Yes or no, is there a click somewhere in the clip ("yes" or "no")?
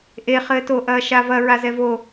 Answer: no